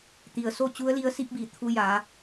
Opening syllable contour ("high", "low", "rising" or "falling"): low